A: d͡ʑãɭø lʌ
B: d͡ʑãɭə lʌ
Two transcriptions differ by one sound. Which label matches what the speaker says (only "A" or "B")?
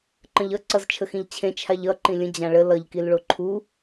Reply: B